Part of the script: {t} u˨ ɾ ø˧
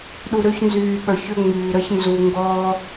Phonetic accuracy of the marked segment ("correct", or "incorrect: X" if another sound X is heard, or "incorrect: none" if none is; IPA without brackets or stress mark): incorrect: ɗ